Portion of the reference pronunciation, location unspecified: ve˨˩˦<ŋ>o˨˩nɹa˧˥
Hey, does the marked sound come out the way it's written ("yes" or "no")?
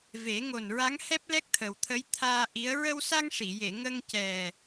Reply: yes